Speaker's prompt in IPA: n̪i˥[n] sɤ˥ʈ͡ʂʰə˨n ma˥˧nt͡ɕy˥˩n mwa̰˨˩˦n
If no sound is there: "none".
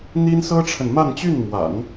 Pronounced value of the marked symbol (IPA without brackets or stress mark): n